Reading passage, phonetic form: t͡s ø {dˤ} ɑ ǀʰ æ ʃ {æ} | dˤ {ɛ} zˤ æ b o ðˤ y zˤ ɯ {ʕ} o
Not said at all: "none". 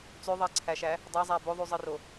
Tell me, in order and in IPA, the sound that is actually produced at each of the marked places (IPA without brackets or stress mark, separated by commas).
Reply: ðˤ, æ, æ, r